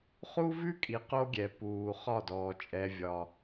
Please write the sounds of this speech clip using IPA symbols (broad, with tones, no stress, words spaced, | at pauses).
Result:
χu˦vʉ˦kʼi˨˦ qo˦ɡʲɛ˨ puː˨χɒ˦˨dɔː˨ t͡ʃʼɛ˦vʲɒ˦